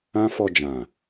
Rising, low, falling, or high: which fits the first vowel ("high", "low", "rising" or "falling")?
high